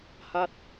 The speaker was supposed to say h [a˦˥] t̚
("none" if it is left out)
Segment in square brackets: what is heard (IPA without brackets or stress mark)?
a˦˥